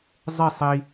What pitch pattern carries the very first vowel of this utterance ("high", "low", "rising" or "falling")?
falling